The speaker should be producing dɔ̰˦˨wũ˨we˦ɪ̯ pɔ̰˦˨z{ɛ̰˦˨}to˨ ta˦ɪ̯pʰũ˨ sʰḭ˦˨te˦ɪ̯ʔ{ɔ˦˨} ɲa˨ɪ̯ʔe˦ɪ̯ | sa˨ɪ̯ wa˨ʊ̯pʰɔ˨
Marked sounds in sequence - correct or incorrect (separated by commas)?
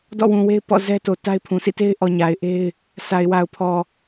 incorrect, incorrect